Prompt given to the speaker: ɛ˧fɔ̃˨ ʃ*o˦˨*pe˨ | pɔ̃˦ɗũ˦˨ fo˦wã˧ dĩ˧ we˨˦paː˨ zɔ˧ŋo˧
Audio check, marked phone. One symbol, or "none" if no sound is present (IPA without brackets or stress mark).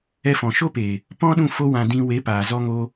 o˦